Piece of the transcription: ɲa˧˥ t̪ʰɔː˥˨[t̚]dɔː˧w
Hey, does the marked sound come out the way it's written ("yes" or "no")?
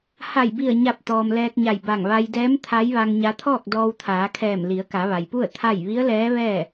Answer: no